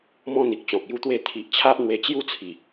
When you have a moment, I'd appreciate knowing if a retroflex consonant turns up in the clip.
no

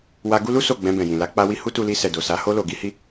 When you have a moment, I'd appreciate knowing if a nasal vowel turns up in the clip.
yes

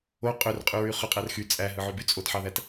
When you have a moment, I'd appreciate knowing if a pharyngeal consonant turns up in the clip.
yes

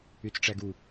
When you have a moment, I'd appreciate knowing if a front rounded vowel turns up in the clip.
yes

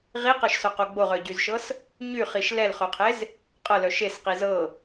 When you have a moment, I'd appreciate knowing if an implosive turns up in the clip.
no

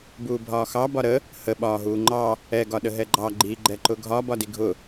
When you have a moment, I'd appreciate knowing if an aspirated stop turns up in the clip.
no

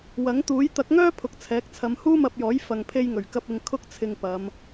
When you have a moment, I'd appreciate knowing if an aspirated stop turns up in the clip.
yes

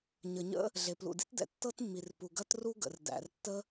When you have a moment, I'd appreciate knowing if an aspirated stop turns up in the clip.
no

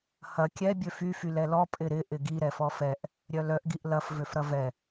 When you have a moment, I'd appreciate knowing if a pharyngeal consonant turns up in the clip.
no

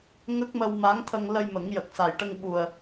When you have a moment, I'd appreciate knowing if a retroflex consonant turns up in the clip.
yes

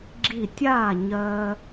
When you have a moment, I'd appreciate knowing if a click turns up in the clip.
yes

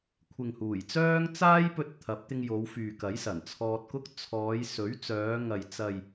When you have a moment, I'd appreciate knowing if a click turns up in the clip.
no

